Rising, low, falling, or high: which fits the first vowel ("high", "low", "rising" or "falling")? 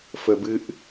high